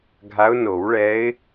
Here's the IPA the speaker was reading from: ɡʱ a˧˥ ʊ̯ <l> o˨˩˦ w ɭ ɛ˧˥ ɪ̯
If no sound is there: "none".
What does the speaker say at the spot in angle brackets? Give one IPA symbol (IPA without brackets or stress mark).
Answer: n